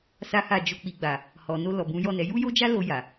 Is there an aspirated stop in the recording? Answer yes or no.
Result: no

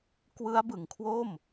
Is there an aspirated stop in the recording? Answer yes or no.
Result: yes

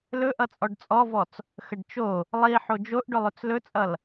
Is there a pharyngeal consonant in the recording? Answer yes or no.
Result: yes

